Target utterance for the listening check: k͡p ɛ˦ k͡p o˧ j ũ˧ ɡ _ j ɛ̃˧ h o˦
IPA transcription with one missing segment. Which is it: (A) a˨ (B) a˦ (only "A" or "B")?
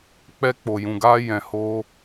B